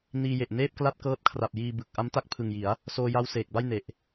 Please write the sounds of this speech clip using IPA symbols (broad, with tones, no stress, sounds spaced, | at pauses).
n iː˧ j e˨˩ ʔ n eː˥˩ p̚ k l a˥˩ t̚ k ɤː˦˥ t̚ kʰ r a˨˩ p̚ j iː˧ b ɯ˨˩ k̚ ʔ a˦˥ m t a˥˩ k̚ pʰ ɯ˨˩ ŋ j i˩˦ a̯ | s oː˧ j a˦˥ w s eː˨˩ k̚ b a˥˩ j n e˨˩ ʔ